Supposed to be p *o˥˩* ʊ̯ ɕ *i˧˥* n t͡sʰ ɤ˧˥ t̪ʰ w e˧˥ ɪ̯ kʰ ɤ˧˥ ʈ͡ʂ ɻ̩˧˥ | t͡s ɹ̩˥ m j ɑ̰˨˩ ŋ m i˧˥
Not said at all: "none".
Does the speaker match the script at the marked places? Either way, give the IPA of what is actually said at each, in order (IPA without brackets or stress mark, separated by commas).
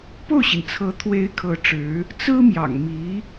o˥˩, i˩